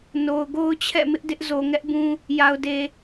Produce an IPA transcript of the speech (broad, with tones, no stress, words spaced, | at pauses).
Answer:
no˨ʊ̯ ɡo˦ʊ̯t͡ɕʰɛ̰˦˨ mɪ˦ʔdɪ˦ʔ zo˨ŋɛ˦ʔbũ˦ | ja˨ʊ̯de˨